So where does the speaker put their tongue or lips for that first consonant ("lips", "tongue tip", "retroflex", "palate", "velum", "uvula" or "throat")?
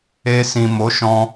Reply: tongue tip